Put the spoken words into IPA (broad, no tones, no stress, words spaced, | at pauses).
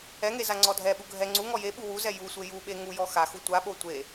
ɛŋe zaŋ͡ǀɔdʱɛɓu ɡʱɛ ŋ͡ǀu ŋɔjeɓu wuzɛ jusʷe juɓe ŋujɔ xaxu tʷaɓo tʷe